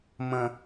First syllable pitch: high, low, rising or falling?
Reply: low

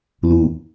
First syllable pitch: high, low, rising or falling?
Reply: low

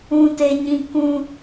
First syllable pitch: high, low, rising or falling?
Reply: high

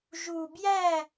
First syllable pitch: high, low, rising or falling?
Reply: low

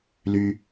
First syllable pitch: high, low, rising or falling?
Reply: low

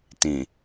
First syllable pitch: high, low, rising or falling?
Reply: low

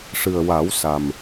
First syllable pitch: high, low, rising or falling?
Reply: low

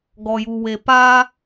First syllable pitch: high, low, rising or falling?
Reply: low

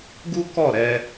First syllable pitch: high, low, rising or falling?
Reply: high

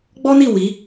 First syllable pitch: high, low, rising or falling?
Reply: high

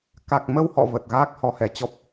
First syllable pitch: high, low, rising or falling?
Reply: low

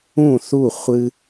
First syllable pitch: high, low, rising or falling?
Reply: falling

